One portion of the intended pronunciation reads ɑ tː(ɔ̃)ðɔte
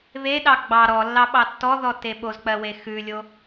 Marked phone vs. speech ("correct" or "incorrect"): incorrect